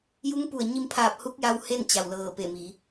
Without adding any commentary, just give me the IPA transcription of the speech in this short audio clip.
j u˧˥ ŋ p u˧˩ ə̯ ɲ i˧ m pʰ aː˧˩ p̚ h u˧˥ k̚ j a˧ w h e˥˨ n t͡ɕ a˧˩ w l ɤː˧˩ p e˧˩ m i˩˧

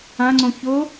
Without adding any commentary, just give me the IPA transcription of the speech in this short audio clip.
ã ŋ͡ǀ õ ç ʊ

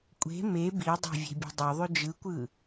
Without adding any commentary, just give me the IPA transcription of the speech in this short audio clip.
kʷʼ e̤ m e b i dˤ e̤ vʲ e̤ bʲ o̤ dˤ o ðˤ y d͡ʒ ɯ kʷ ɯ

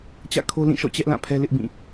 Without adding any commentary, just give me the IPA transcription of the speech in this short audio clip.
t͡ɕ ä̰˦˨ kʰ o˦ l ĩ˦˨ ʃ ɔ̰˦˨ t͡ɕ ɛ˦ ʔ l ã˦˨ pʰ ɛ˦ l ɪ˦ ʔ b ĩ˦˨

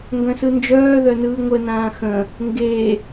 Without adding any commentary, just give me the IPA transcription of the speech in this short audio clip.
ŋ ɡ œ̃ s ɯ n d͡ʒ œː ð œ n ɯː ŋʷ ə n ãː x ə̃ | ŋ ɡ e

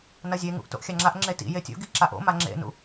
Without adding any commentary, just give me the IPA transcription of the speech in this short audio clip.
n ɐ zʲ e ŋ ṵ ʔ t o̰ ʔ xʲ a ŋ͡ǁ a ʔ ŋ͡ǁ e t ḭ j e tʲ o̰ ɡ i ǁ a ʔ o̰ m a ŋ͡ǁ ḛ n ṵ

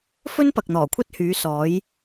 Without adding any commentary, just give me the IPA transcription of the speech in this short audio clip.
f ɵ˥ n p ɐ˨ k̚ n̪ ɔː˨˩ kʷʰ ɐ˥ t̚ h yː˨˥ s ɔː˨˥ j

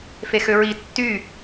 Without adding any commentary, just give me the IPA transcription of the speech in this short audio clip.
f e x ø ɹ i tː y

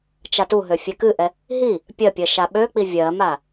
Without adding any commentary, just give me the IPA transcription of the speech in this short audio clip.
t͡ʃ a t u ɦ ø fʲ ɛ k ɨ ʔ ɛ | ɦ i | pʲ ɜ pʲ ɜ ʃ a ɓ ø k͡p i vʲ ɜ m a

